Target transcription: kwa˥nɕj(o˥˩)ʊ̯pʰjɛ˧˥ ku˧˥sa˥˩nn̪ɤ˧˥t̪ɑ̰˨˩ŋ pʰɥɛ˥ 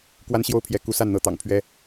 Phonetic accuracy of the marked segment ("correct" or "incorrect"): correct